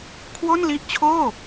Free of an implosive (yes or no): yes